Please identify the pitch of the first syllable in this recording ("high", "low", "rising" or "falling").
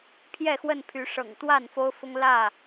falling